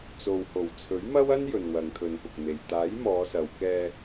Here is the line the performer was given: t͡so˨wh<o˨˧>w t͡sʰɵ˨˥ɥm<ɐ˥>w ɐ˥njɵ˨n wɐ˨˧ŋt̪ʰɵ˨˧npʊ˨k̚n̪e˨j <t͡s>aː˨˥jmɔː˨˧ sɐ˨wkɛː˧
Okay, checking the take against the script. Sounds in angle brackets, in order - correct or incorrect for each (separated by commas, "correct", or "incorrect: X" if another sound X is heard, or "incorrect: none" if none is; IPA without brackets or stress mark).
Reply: incorrect: o˨˩, correct, incorrect: t̪